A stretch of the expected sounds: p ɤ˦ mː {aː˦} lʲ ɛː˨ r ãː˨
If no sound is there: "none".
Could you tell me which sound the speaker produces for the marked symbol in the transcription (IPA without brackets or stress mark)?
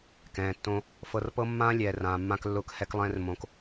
ãː˦